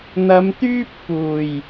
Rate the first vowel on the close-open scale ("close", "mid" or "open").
open